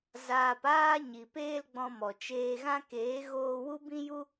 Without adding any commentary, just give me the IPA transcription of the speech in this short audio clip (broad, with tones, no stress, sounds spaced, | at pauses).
z aː˧ p aː˦ ɲ i˨ p eː˦ l ɡ͡b ɔ̃˧ m ɔ˨ t͡ʃ eː˧ ɣ ã˦ k eː˨˦ ɣ oː˧ w u˦ b ĩ˦ j u˦